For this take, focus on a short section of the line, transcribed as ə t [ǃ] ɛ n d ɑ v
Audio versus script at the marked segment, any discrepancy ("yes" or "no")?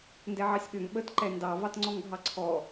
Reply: no